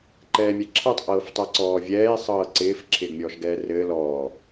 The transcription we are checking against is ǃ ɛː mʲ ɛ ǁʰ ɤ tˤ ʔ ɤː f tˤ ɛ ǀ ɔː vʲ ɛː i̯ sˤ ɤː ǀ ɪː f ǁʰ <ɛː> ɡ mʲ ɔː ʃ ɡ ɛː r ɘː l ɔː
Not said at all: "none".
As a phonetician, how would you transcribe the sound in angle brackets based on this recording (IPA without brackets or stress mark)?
ɪː